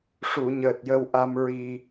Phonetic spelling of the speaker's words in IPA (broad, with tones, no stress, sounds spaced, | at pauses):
ʂ u˨˩˨ ɲ əː˨˩ t̚ j ə˧ w ʔ a˧ m ɹ i˧